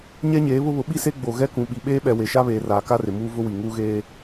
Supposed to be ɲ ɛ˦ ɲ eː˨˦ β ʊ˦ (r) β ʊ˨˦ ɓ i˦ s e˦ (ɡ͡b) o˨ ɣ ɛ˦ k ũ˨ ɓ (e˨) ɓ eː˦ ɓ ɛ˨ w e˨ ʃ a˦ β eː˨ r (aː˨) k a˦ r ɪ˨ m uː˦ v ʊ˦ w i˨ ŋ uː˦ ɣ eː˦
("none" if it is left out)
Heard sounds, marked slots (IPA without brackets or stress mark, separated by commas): none, ɡ͡b, i˨, aː˨